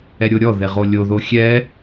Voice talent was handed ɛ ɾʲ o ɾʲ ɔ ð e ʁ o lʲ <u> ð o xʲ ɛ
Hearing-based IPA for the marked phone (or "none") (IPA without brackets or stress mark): o